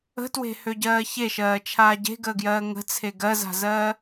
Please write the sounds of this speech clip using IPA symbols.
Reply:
ə̤ t w e̤ h ø ɟ ɜː ç e ʃ ɜː t͡ʃʰ aː ɟ e̤ ɡ əː ɡ j ɜː ŋ ə̤ t͡sʰ e ɡ ɜ z a̤ z ɜː

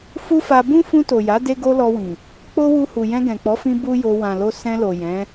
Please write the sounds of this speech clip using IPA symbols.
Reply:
f u˦ f a˧ b ũ˦ f ũ˧ t o˨ j a˨˦ d e˦ ɡ o˦ l ɔ˧ w ĩ˨ | k͡p o˦ w u˧ h u˨ j ɛ̃˧ ɡ ɛ̃˨ k͡p ɔ˨˦ f ĩ˧ b u˦ j o˧ w ã˨ l o˧ s ɛ̃˧ l o˨ j ɛ̃˨˦

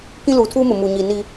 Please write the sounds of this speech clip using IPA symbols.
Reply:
k ĩ˦ l uː˨ tʰ uː˦ m ʊ˨ m uː˨ ɲ iː˨ n i˦

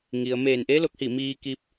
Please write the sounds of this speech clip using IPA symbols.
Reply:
ŋ i˩ ə̯ m eː˧˩ n ʔ e˧˥ l o˧˥ k̚ h i˧˩ m iː˧ k i˧ p̚

